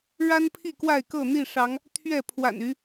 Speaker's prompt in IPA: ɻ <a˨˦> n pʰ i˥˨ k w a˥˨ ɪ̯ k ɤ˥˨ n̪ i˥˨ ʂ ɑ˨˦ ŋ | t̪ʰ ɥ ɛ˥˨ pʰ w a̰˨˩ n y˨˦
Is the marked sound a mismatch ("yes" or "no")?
yes